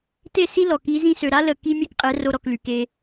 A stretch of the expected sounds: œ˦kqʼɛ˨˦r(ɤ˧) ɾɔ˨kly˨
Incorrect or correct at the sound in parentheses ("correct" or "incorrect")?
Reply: incorrect